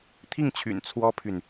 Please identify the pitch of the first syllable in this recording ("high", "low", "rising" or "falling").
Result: falling